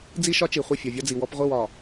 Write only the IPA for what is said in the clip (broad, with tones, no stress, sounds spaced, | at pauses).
d͡z i˦ ʃ ɒ˦ t͡ʃ i˨ χʷ ɪ˦˨ fʲ ɒ˨ vʲ ɒ˦ d͡z i˨ w ɔ˦ p ʁʷ i˦˨ w ɒ˨